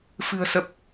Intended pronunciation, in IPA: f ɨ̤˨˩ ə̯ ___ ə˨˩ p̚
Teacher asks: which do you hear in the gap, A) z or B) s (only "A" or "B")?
B